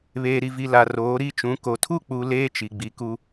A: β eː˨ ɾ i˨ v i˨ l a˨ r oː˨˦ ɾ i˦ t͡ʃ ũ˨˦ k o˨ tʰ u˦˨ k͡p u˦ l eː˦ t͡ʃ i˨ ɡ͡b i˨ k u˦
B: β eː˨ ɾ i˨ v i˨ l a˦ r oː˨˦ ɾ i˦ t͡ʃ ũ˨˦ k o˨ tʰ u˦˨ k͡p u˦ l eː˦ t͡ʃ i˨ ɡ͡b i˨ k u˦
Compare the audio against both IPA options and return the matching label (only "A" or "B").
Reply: A